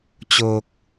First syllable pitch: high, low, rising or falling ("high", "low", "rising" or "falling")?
low